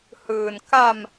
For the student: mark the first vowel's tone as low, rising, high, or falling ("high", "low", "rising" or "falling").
low